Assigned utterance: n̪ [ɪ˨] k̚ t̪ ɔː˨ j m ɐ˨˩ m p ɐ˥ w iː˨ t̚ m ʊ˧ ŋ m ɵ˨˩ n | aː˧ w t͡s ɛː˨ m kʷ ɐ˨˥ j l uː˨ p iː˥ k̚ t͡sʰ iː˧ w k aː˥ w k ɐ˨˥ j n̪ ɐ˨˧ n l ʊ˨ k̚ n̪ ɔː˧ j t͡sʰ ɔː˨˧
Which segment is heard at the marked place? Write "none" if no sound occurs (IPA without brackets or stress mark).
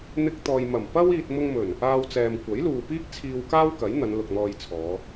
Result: ɪ˧